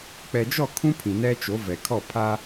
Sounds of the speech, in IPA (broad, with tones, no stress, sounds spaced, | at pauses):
k͡p ɛ˨ d͡ʒ ɔ˦˨ kʰ ũ˦ pʰ ĩ˨ n ɛ˦ t͡ʃ o˨˦ v ɛ˨ kʰ ɔ˦˨ pʰ a˦